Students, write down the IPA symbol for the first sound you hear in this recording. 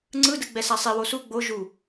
ŋ͡ǀ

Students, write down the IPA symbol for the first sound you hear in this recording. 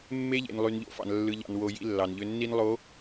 mː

